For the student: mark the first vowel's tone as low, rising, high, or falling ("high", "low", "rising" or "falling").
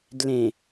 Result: low